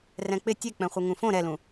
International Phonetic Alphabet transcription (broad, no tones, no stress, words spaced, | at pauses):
rɛ̃k͡pɪ tʲek͡pɛ̃χʷɪ ŋũfõ ɾɛlũ